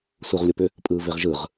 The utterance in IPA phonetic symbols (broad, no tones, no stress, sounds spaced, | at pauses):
s u ʁ lʲ o p ʏ | pʼ ɯː v e ʁ ʒ ɯ ʁ